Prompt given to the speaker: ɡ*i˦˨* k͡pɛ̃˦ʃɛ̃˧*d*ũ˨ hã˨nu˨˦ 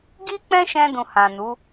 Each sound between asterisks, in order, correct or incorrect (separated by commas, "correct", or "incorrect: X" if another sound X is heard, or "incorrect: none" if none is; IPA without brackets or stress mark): incorrect: i˦, correct